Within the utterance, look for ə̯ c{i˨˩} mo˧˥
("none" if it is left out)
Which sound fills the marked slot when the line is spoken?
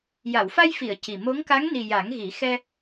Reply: i˨˩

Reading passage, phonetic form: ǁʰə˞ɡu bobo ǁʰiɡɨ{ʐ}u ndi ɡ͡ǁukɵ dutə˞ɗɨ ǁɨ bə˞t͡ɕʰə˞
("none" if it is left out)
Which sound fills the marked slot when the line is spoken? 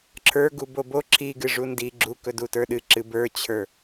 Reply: ʐ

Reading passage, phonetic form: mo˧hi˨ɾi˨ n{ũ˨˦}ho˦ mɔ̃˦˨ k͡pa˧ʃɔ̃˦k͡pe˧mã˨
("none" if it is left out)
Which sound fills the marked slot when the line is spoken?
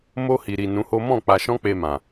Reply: ũ˨˦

